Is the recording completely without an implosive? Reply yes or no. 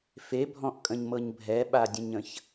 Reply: no